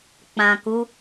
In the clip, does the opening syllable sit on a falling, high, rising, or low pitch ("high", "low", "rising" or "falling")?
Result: low